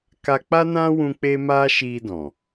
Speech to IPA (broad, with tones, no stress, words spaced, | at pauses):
ka˧k͡pa˦nã˦wũ˧ k͡pe˦ma˦ʃi˧dɔ̃˨